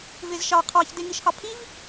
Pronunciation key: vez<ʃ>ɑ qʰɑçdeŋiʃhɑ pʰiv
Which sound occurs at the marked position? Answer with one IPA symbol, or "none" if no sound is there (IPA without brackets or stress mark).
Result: ʃ